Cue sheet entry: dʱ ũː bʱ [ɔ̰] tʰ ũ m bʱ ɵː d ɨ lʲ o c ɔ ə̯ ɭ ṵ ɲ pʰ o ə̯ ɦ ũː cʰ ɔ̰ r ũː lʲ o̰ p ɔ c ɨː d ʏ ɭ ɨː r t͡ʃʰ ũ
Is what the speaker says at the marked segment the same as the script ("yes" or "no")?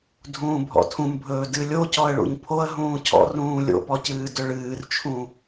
yes